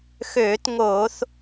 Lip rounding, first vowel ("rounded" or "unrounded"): rounded